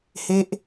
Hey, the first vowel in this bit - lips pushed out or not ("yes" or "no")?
no